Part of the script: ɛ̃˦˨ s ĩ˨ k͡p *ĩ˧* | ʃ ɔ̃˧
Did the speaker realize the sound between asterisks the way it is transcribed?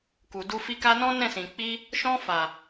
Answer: no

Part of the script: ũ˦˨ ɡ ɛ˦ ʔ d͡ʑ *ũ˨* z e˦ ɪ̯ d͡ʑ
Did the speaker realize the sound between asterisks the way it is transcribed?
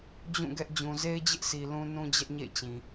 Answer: yes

